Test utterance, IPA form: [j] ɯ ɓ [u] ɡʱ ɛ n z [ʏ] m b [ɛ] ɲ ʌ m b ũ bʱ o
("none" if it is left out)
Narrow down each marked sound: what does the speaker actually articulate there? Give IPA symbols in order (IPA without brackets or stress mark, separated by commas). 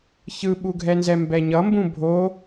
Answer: ç, u, ɛ, ɛ